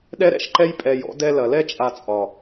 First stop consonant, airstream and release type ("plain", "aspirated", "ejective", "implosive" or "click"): implosive